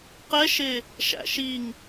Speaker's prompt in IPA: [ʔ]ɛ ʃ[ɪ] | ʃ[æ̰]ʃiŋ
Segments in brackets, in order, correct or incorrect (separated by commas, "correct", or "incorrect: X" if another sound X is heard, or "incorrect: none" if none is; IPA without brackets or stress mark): incorrect: q, correct, correct